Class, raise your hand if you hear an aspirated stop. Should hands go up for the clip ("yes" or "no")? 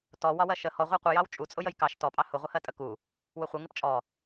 no